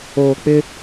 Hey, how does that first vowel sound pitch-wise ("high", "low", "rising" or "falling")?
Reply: low